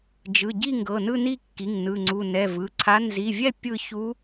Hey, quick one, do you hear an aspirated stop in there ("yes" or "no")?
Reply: yes